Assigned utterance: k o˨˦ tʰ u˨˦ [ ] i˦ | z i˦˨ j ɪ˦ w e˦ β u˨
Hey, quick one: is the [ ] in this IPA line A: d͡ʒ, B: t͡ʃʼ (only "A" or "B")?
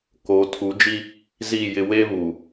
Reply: A